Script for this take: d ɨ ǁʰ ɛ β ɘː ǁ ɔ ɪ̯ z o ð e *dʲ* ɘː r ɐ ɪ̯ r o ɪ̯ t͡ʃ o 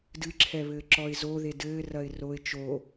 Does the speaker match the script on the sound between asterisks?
no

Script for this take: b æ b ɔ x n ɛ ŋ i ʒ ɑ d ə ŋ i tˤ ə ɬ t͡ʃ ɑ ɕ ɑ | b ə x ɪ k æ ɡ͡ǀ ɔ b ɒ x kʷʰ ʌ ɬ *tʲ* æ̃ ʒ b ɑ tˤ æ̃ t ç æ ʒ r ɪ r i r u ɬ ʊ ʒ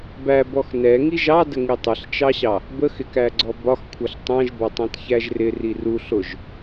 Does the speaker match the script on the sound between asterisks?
no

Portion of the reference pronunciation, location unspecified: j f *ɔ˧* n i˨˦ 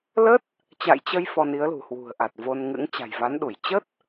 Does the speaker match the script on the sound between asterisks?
yes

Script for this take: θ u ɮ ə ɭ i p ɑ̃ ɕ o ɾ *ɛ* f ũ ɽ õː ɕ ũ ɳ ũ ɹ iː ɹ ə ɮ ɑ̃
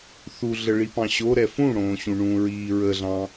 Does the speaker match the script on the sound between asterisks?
yes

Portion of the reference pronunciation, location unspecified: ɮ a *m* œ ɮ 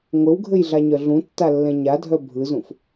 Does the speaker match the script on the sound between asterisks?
no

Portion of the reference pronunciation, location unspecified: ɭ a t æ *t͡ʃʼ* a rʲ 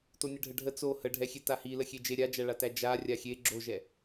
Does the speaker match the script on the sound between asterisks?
no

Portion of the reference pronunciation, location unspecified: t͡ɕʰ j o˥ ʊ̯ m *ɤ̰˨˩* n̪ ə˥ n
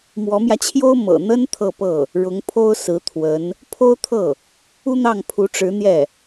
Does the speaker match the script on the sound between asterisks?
yes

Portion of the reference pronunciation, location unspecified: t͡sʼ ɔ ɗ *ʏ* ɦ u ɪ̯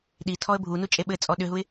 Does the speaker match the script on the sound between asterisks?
yes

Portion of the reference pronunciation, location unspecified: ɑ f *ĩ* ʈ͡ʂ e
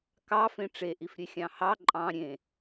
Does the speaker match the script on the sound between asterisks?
no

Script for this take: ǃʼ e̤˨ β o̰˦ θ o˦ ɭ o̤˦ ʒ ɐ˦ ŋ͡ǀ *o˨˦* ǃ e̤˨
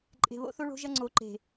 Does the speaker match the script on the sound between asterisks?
yes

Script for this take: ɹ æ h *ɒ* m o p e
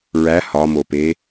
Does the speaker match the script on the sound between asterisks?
yes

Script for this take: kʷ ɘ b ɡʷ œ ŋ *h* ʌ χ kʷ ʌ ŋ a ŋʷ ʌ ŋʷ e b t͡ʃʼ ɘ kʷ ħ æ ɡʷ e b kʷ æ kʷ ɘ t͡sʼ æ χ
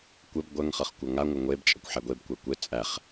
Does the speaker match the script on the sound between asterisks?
no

